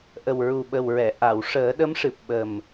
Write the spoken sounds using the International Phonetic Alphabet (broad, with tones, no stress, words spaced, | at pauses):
ʔə˨˩wɹu˨˩ɓə˨˩w ɹɛ˨˩˨ ʔa˨˩˨wʂəː˨˩˦ɗə˧˥mʂɨ˨˩p̚ ɓə˨˩m